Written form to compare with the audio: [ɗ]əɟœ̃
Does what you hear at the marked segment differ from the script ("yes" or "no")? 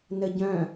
yes